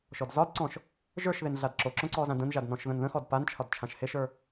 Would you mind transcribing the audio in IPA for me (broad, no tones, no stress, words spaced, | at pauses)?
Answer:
ʃɔdzɒdǀɔ̃ʃ | ʒə˞ʃðen ɮadǁoǁõ ǀɔzãdə̃nʒad nɔ̃ʃðə̃nðə̃xɔd pant͡ʃʰɒd t͡ʃʰãʃheʃə˞